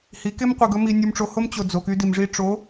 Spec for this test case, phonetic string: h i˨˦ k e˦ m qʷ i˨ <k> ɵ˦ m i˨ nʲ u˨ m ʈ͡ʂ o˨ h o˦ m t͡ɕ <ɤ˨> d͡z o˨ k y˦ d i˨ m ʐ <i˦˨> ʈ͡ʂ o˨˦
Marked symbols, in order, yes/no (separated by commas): no, no, no